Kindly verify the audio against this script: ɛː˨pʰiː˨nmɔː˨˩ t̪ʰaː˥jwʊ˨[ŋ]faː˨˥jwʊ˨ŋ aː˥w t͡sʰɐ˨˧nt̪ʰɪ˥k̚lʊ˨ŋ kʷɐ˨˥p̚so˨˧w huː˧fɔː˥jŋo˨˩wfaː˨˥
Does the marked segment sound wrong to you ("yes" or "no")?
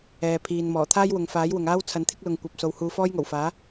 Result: no